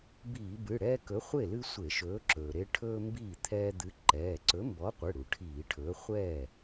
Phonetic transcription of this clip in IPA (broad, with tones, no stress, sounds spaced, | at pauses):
b iː˧˩˧ b ɨ˩˧˩ ɽ ɛː˦ k ɵ˨˥ χʷ e˥˩ l ɨ˦ sʷ e˧˩˧ ʃ ɵː˨˥ ǁ ɵː˩ ɾ e˦ ʈʰ ɵː˦ m b iː˥˩ t̪ʰ ɛː˦ d̪ ɨ˨˥ ǃ ɛː˩˧˩ ǀ ɵ˨˥ m b ɔ˨˥ qʷ ɨ˩˧˩ ɽ u˩ ʈʰ iː˧˩˧ ʈʰ ɵː˨˥ χʷ ɛː˥˩